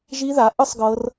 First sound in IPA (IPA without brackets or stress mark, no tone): ʒ